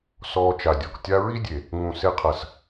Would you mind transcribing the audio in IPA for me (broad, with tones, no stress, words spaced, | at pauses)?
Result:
sɔː˧t͡ʃa˨dʲɔ˨k tʲa˧ɹi˦dʲe˨ | ŋũ˨se˧qʰɐ˨s